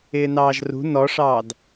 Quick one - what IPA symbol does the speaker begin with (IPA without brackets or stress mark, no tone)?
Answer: ɪː